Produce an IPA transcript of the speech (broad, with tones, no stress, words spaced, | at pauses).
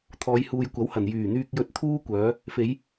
t̪ʰɔː˨˧jhuː˨jkʷɐ˨˥whɐ˨˩n jyː˨˩n̪yː˧k̚jɵ˧t̚ t̪ʰuː˥ kʷœː˨˧ | fe˨˧j